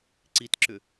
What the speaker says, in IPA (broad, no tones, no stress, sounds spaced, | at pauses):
ǀ i t ǁ ʏ